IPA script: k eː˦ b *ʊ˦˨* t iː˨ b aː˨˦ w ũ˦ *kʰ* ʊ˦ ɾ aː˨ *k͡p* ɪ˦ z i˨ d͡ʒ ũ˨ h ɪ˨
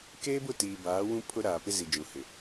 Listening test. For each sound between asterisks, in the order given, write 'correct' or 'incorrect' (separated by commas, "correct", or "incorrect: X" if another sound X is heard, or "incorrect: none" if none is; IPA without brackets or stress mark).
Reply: correct, incorrect: pʰ, incorrect: p